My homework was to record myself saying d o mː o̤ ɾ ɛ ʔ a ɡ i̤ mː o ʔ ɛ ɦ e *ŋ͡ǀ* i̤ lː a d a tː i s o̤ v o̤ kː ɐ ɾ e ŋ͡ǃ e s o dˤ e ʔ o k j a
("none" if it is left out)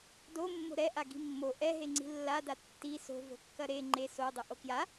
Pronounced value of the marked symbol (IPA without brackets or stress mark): ŋ͡ǀ